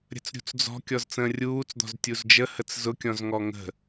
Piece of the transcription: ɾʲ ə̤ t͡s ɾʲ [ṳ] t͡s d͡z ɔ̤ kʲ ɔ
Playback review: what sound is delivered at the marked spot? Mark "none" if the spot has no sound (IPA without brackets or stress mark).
ṳ